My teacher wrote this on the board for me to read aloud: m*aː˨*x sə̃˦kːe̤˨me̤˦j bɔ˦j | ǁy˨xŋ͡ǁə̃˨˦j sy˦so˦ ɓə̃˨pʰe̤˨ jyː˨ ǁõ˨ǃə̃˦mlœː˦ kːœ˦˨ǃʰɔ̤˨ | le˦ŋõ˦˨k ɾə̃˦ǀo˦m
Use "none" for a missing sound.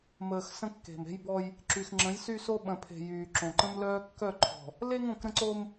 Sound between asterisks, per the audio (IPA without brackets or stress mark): əː˨